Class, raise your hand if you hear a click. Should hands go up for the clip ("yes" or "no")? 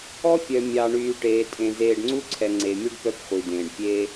yes